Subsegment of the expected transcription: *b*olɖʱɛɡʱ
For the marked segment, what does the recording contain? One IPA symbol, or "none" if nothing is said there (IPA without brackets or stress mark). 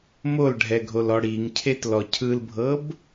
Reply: m